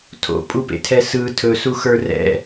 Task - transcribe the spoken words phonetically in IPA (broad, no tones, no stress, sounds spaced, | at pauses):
tʰ o̰ pʼ u p ḛ tʰ ɛ s ɯ tʰ ɵ s u x ə˞ r ɛ̰